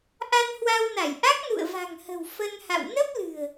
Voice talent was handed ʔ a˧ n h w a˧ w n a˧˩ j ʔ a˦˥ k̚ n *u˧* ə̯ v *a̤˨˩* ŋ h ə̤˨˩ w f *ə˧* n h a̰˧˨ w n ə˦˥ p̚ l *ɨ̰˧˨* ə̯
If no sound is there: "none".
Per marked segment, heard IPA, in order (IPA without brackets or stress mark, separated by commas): ṵ˧˨, a̤˨˩, ə˧, ɨ̤˨˩